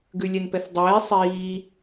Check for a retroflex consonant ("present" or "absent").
absent